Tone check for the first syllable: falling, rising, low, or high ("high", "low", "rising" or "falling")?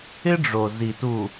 high